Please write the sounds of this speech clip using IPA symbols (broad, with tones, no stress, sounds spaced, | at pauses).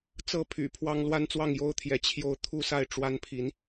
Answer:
t͡s ɤ˥˨ pʰ y̰˨˩ pʰ w ɑ˦ ŋ l w a˦ n t͡s w ɑ˥˨ ŋ j o˦ ʊ̯ t̪ʰ j ɛ˨˦ t͡ɕʰ j o˥˨ ʊ̯ t̪ʰ u˦ s a˥˨ ɪ̯ ʈ͡ʂ w a˦ n pʰ i˨˦ n